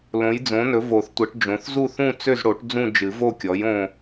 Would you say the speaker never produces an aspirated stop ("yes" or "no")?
yes